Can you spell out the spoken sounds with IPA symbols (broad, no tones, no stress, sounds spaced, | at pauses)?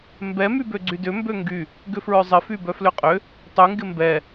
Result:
m b ɛ m y b ø ɡ͡ǀ y d ʏ m b ø ŋ ɡ y | ɡ ʏ f ɹ œ zˤ ɪ f y b œ f l ʏ qʼ ʏ | tˤ y ŋ ɡ ɪ m b ɛ